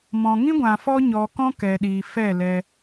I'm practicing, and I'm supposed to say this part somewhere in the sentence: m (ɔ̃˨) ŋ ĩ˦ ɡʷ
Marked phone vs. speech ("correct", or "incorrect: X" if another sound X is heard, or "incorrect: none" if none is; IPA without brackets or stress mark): correct